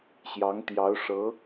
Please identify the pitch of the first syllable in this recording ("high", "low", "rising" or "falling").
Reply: rising